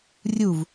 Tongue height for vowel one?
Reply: high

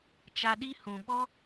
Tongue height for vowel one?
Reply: low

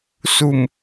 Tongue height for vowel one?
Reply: high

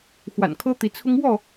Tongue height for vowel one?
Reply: low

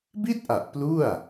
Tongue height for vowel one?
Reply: high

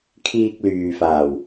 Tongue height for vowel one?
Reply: high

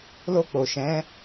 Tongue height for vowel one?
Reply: mid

